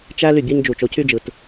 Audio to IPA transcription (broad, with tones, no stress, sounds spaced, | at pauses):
t͡ʃ æ˦ l y˦˨ bʲ ɑ˦ ɲ d͡ʒ u˨ t͡ʃ o˨˦ cʰ y˦ d͡ʒ ɯ˨ t